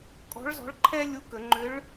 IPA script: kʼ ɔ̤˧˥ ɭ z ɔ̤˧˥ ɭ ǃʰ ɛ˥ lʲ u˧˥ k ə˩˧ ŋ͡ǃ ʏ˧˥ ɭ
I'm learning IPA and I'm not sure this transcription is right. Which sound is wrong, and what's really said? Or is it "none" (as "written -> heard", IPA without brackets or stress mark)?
none